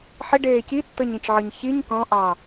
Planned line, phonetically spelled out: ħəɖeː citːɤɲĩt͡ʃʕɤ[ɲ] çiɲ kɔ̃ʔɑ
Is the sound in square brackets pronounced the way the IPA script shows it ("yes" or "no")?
yes